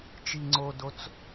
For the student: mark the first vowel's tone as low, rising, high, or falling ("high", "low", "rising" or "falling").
low